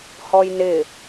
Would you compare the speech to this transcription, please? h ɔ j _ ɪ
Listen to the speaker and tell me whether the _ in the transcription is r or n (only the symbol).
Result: n